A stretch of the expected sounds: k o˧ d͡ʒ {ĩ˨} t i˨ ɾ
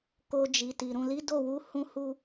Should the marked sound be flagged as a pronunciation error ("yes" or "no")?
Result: yes